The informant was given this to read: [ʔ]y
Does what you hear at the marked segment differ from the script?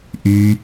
no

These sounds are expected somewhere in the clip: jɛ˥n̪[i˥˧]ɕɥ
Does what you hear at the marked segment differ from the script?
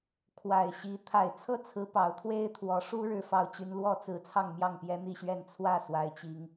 no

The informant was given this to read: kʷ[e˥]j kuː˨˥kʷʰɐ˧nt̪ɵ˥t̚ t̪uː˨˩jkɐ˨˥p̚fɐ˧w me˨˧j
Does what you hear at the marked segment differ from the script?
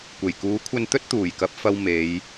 yes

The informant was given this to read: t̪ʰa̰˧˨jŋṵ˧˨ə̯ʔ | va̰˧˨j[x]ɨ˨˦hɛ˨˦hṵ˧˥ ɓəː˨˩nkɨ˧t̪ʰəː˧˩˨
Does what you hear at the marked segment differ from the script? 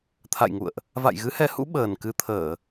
yes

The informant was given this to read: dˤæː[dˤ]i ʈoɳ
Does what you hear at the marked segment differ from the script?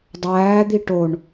yes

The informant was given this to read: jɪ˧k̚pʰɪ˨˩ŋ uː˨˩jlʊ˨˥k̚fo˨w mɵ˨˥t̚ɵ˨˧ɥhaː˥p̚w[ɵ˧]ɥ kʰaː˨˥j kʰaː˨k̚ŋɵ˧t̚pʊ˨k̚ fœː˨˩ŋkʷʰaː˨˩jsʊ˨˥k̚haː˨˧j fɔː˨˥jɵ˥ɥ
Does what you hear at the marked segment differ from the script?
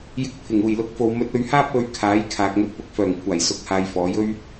no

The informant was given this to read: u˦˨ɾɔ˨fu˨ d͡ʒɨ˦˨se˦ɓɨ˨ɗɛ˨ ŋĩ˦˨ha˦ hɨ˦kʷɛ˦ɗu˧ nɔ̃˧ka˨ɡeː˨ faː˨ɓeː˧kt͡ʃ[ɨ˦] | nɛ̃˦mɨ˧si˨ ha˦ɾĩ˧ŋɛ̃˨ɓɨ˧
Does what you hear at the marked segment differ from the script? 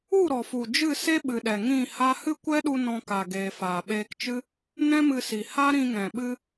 no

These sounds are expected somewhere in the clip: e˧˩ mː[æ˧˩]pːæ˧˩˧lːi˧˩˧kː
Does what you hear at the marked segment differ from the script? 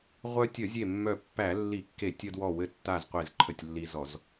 yes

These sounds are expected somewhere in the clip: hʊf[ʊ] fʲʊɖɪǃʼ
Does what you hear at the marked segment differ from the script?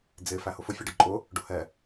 no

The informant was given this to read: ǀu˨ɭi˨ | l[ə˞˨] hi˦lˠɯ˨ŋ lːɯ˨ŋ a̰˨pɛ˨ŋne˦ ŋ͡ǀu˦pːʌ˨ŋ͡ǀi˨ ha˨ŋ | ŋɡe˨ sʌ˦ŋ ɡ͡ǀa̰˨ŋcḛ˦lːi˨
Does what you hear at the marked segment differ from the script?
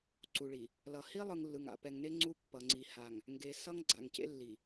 yes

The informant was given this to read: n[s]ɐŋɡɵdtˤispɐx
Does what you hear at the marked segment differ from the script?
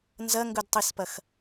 yes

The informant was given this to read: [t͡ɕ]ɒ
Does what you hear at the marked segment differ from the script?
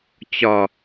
no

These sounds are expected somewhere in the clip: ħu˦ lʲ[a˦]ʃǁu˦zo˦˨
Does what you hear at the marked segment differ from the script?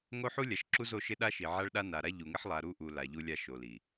yes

